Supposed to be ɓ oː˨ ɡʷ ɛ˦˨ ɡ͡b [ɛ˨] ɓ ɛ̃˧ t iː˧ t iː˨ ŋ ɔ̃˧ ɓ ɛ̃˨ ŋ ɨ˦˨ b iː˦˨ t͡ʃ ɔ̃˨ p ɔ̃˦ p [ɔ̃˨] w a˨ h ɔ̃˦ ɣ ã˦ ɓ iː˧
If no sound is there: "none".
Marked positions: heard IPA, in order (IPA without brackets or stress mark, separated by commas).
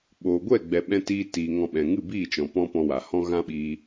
ɛ˨, ɔ̃˧